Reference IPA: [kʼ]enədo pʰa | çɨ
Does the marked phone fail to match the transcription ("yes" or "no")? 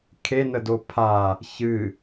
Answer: yes